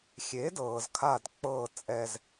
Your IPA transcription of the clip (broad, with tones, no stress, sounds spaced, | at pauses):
xʲ e˩˥ d ɤː˩ z kʰ a˧˩ d k͡p ɤː˧˩ t͡sʼ ɛ˧˩ z